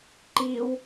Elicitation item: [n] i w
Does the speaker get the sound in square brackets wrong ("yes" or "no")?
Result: yes